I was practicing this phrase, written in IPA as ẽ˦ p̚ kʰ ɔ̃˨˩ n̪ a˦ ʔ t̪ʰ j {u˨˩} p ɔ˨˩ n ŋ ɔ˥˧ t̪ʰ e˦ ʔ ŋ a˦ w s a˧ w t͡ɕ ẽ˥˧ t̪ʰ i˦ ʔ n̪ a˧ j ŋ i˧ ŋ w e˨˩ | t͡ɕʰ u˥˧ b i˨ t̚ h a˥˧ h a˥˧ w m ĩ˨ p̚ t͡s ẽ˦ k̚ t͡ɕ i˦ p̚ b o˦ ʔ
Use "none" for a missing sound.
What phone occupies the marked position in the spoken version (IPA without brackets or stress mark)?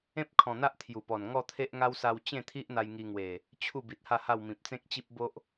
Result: u˨˩